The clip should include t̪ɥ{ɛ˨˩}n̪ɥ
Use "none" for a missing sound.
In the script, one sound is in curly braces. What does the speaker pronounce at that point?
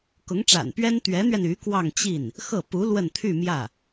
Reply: ɛ˧˥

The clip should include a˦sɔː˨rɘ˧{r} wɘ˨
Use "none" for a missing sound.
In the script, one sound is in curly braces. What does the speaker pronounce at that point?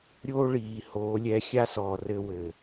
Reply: none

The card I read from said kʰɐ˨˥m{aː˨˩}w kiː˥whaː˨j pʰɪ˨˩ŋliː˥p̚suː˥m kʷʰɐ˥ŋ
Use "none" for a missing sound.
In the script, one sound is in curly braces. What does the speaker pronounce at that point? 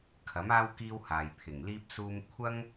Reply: aː˥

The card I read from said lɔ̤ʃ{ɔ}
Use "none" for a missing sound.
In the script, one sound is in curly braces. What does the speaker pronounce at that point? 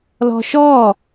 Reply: ɔ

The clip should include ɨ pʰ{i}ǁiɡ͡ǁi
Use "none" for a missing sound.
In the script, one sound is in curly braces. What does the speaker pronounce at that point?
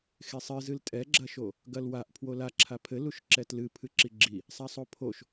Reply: ɨ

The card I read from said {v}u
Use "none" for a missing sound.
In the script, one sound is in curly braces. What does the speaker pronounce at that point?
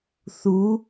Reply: θ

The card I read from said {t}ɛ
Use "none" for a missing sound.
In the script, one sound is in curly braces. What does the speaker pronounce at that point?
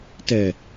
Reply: t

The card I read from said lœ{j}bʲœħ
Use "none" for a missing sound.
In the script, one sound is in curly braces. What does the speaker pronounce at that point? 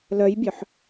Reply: j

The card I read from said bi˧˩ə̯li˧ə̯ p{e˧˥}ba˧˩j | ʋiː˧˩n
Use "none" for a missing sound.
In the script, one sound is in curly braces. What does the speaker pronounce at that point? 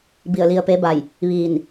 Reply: e˧˥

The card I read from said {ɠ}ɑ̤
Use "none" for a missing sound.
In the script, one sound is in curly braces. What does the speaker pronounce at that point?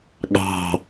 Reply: ɠ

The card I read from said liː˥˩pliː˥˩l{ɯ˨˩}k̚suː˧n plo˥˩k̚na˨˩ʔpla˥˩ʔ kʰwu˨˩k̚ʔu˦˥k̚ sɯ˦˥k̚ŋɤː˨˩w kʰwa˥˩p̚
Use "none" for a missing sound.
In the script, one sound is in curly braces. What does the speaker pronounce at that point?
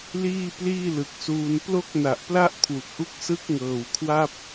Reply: ɯ˨˩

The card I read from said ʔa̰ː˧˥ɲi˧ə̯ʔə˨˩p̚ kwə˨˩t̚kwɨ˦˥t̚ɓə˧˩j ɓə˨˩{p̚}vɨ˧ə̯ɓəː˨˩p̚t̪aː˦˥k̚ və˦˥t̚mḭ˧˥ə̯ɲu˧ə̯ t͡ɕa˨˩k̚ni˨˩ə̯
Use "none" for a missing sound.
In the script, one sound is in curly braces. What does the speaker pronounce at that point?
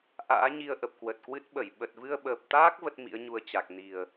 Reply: t̚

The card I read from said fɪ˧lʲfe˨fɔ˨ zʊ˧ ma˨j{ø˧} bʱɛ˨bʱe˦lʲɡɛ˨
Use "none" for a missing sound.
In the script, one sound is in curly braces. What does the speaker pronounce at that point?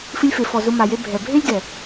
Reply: e˧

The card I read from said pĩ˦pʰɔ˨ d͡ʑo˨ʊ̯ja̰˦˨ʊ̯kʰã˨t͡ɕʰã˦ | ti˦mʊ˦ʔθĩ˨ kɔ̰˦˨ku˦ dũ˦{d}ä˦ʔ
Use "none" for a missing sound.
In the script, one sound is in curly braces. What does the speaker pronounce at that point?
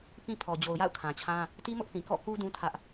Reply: tʰ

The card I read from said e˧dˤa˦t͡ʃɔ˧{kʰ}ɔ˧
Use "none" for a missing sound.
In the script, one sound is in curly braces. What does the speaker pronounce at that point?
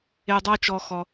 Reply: x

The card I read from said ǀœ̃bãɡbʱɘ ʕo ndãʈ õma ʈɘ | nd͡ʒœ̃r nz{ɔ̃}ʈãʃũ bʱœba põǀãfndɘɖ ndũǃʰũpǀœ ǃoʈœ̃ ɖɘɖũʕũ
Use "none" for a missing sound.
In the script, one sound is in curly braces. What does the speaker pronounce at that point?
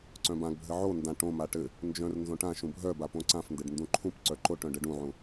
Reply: õ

